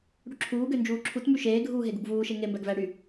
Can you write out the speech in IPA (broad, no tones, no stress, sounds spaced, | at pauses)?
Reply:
ɽ y ǁʰ uː ɡ ø n d͡ʒ uː ǁʰ u t m y ʃ eː ɡʱ uː ɦ e ɡ u ɡ v uː ʃ e ŋ e m b æ ɡ v æ ɽ y